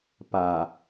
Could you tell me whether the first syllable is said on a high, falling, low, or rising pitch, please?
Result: low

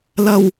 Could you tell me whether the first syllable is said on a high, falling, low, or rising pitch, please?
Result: low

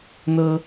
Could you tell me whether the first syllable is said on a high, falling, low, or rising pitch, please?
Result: high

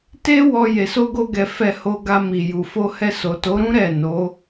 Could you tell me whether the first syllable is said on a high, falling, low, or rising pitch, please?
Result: high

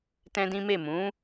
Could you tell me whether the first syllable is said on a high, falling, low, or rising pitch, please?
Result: high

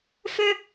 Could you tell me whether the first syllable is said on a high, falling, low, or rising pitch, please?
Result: high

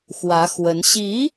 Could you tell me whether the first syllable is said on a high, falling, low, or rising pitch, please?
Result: rising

